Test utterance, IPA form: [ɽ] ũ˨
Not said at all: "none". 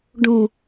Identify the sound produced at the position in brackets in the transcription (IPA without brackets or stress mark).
ɖ